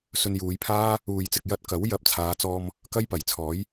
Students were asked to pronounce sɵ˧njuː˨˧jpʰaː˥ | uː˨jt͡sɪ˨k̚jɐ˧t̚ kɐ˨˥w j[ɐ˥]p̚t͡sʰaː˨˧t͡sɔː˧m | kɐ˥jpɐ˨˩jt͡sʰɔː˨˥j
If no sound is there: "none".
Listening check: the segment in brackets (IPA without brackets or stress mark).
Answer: ɐ˧